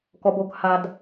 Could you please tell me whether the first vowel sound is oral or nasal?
oral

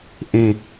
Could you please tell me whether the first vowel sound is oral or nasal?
nasal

